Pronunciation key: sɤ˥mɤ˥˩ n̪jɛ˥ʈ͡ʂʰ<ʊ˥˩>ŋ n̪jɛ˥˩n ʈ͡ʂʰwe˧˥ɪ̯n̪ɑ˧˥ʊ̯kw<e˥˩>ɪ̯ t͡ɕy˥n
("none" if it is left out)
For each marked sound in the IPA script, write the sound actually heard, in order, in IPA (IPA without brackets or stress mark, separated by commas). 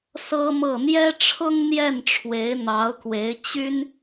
ʊ˥, e˧˥